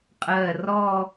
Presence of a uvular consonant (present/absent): present